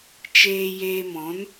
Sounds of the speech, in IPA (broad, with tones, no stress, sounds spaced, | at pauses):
t͡ʃ eː˧ j eː˧ m ɔ̃˨˦ n